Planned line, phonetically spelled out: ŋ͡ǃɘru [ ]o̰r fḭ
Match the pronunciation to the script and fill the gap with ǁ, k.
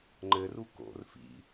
k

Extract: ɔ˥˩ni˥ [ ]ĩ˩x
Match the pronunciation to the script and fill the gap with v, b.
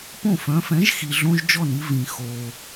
v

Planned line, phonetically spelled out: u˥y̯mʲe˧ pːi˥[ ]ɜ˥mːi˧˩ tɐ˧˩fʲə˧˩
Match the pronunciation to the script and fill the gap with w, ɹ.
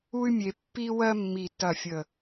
w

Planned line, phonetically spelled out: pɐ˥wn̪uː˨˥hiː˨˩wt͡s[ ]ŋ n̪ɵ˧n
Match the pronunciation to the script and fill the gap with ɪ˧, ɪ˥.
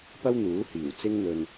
ɪ˥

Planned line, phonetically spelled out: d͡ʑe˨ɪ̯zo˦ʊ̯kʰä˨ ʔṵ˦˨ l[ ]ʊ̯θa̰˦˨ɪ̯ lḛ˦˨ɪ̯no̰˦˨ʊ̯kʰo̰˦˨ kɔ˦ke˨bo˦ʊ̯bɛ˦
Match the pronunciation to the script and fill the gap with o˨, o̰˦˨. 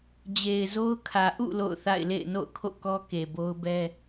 o̰˦˨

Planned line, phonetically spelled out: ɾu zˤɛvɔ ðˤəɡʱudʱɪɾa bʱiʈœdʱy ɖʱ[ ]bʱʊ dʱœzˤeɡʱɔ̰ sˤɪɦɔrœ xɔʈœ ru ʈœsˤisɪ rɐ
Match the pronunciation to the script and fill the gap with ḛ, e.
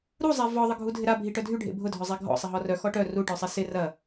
ḛ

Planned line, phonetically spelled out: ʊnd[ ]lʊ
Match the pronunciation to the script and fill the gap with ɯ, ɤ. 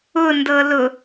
ɤ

